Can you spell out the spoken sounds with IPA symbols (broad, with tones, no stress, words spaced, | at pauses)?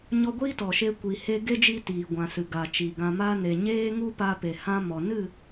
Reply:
ɲɔ˧ɡʷiː˦ tɔ˨ʃe˧ kʷi˨he˧ɡe˦d͡ʒi˧ tiː˨ɡʷã˨ sɨ˨ɡa˨t͡ʃi˨ ɡã˨ma˧ne˨ ɲeː˦ŋu˦pa˧ pe˨hã˦mɔ˨ nɨ˦˨